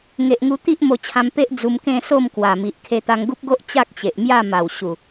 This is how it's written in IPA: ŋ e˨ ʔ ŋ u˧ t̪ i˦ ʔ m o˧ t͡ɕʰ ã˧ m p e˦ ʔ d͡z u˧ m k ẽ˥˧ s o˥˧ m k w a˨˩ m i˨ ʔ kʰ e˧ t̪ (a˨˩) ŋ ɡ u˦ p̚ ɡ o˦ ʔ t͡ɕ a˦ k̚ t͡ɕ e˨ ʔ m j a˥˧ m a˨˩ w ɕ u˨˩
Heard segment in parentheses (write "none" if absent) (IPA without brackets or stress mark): a˧